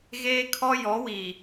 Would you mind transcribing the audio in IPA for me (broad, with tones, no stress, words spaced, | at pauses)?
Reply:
ɣeː˦kʰɔ˦ jɔ˨˦wi˨